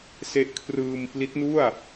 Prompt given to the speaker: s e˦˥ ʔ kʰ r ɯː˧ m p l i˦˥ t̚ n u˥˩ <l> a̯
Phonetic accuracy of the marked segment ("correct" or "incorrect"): incorrect